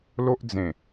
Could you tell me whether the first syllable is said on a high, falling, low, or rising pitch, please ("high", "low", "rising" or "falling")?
high